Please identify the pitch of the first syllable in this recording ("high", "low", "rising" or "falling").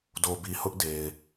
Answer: low